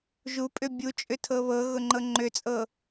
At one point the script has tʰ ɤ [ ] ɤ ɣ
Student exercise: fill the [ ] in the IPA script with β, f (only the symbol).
β